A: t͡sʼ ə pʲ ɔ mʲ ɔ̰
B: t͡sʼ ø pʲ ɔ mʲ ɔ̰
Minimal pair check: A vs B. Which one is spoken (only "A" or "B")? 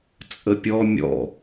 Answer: A